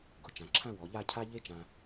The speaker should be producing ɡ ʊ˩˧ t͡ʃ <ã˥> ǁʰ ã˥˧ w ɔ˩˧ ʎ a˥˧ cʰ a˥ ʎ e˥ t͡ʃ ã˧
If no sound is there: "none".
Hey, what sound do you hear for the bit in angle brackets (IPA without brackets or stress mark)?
ã˩˧